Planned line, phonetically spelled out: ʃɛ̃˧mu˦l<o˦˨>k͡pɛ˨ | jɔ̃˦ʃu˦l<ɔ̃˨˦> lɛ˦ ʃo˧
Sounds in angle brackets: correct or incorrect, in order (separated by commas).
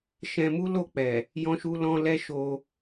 correct, incorrect